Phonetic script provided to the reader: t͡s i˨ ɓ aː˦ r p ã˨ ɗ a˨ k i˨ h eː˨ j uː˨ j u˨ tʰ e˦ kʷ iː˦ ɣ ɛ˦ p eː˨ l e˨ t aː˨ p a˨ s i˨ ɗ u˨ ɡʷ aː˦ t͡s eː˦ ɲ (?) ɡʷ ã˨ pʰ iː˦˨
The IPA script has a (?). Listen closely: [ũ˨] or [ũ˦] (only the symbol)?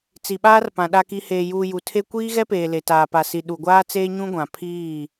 ũ˦